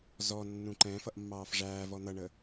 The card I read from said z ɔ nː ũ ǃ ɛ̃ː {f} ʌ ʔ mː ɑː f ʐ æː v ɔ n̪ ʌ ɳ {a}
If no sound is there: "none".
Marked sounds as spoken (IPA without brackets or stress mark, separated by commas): f, ə